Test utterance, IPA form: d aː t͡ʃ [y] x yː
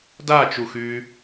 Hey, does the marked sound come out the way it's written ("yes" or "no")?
no